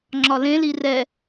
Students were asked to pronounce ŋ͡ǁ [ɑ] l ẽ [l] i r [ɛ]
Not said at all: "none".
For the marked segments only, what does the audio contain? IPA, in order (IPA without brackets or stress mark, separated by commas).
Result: ɒ, l, ɛ